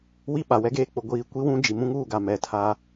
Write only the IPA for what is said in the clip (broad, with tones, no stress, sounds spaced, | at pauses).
w i˦ ɓ a˨ w ɛ˦ ɡ eː˦ k͡p ʊ˨ ɡʷ iː˨ kʷ i˦ w ũ˦ d͡ʒ i˨ m ũ˦ ŋ uː˦˨ ɡ a˨ m ɛ˨ tʰ a˦